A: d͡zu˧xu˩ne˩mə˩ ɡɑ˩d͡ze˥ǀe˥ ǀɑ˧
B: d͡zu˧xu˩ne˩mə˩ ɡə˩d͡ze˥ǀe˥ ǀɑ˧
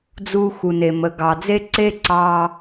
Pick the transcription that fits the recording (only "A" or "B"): A